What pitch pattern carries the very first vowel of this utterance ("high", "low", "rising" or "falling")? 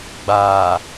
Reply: low